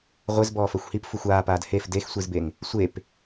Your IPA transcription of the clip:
ʁʷ ɪ z b ɔː f ɜ xʷ h i p f u xʷ aː p aː d h e f d e x sʷ i z b e ŋ | sʷ e p

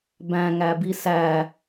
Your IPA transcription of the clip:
b æ̃ ŋ æ b i s æ

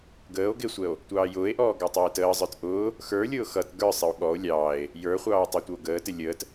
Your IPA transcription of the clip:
ɡ əː o̯ ɡ ɪ sʷ ɛ o̯ | tʷ ɑː j ʊː e̯ ʔ ɔː ɡ ɑ tˤ æ e̯ t əː zˤ ə˞ t ʔ ʊː | x ə˞ lʲ ʊː x ʌ t ɡ ə˞ sˤ ɪ o̯ ɠ ɔ o̯ lʲ ɑː e̯ | j ə˞ χʷ ɑː o̯ tˤ æ tʷ ʌ o̯ ɡ əː t ɪ lʲ əː t

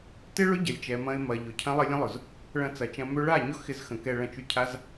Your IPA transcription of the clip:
t ɪ˦ ɭ ʊ˦ ɟ ɐ˨ lʲ t͡ʃ ɛ˨ m ɐ̃˧ ɪ̯ m ɐ˨ ʎ ʊ˨ cʰ ɐ̃˦ lˠ ə˦ lʲ ə̃˦ lˠ ʊ˨ z | ɭ ɐ̃˧ t͡s ɐ˨ t͡ʃ ɐ̃˧ m ø˦ ɭ a˦˨ ɲ ʊ˦ x ɪ˧ z x ə̃˨ k ɛ˧ ɭ ɐ̃˧ t͡ʃ y˧ cʰ a˦ z

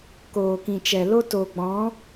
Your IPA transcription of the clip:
k oː˨ k ĩ˨ t͡ʃ ɛ˨ l o˦ t o˨ ɡ͡b ɔ̃˨˦

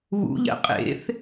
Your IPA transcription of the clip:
β ṵ ʎ ɛ̰ qʼ ḛ θ

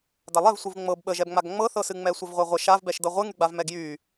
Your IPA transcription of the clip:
d a lˠ ɛ v sʷ ɨ v ŋ͡m ɤ b ɓ ə ʒ ɛ b ŋ͡m a ɡ ŋ͡m ɤ θ ɤ s ɨ ŋ͡m ɛ sʷ ə v ʁʷ ɛ ʁʷ ə ʃ a v b ɛ ʃ d ɤ ʁʷ ɨ ŋ y ɡ͡b a v m ɛ ɡ j y

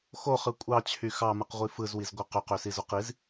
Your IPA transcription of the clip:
x o χ ɯ kʷʼ ɑ t͡ɕʰ y x ɑ m ɯ q ʁʷ i f ɯ z w i z ɡʷ ɑ q ø q ø s i z o q i z

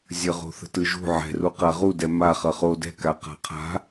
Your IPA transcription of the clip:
zʲ ə ʁ o̤ θ ə̤ t ɯ ʒ ṳ ʕ ɛ̤ r u q a ʁ u d ɛ m a χ ʌ χ o d ɛ̤ k a q a̤ qʰ a̤

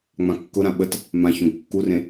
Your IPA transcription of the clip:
ŋ͡m ã kː ʊ ɾ ã ɓ ə t | m ã ç õ ɡ kː u r ẽ

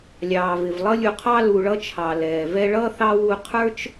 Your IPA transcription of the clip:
lʲ ɑː˨ v ɪ˨ v lˠ ʌ˥ lʲ u˨ qʰ ɑ˦ l u˨ ɭ ʌ˦ t͡ʃʰ ɑ˩ l ɛː˩ v ɛ˦ ɭ ʌ˥ θ ɑ˥ w u˦ qʰ ə˞˥ t͡ʃ

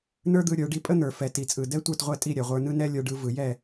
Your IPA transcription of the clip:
n ə˞˥ d̪ ɯ˧ ɾʲ ə˞˩˥ ɖ i˧ pʼ ə˥ n̪ ə˞˩ f ɛ˩ t i˩ t͡sʼ ɯ˩ d ɛ˥ tʷ ə˞˥˩ t ʁʷ ɛ˥˩ tʼ i˥˩ ɾʲ ɛ˩ ʁʷ ə˞˧ n ɯ˥ n ɛ˥ lʲ ə˞˧ ɖ ɯ˩˥ v ɯ˩ j ɛ˥˩

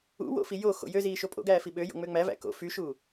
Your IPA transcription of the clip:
ṵ w o̰ f i j o x o̰ j ø z iː ʃ o pʼ o̰ ɡ æː f i ɓ ø j o̰ ŋ͡m ø ŋ͡m æ v æ̰ k o̰ f y ʃ uː

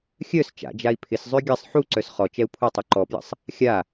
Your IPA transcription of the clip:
xʲ œ s t͡ʃ a̰ d͡ʒ a i̯ pʰ ɪ s zˤ ø ɡʲ ɐ sˤ ħ u ǀ œ s χ ɔ t͡ʃ ɛ u̯ pʰ u tˤ u ǃ ɔ p j ə̰ sˤ | xʲ a

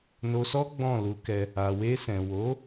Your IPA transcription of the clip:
n o˧ s ɔ˦ ɡ͡b ɔ̃˦˨ l u˨˦ k ɛ˧ | a˨ w e˧ s ɛ̃˨ w o˨˦

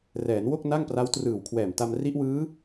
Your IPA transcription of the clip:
r ɛː˩˦ n w o˥˩ k̚ n a˥˩ ŋ p r a˦˥ w t r ɯː˨˩ w kʰ w ɛː˨˩ m t a˧ m r i˦˥ ʔ w ɯː˦˥

